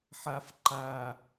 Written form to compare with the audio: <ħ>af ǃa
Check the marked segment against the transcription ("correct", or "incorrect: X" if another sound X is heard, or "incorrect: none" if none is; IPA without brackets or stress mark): correct